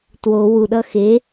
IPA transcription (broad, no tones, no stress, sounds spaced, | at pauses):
t w o w u ɗ ʌ x e